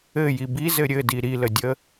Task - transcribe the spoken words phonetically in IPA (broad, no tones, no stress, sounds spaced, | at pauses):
ɘ j i b i z ɘ ɾʲ ɘ d i ɾ i l ə dʲ ə